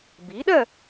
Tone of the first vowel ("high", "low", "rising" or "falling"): rising